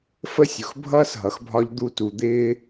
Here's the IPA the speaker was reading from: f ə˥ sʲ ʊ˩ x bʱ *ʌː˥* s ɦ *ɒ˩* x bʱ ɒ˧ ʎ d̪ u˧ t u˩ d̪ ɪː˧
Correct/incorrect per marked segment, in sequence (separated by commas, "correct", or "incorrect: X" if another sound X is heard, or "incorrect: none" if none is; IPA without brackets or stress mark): correct, incorrect: ʌ˩